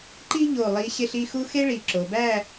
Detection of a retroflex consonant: present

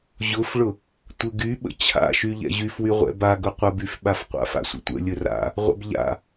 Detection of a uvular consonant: present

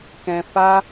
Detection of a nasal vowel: present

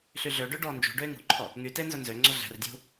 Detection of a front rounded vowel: present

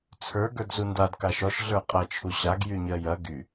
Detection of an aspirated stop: present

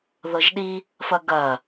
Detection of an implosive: present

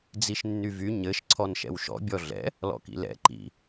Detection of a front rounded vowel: present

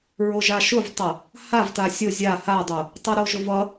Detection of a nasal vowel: absent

